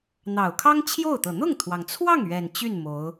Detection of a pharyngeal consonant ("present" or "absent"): absent